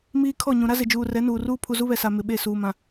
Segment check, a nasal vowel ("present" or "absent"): present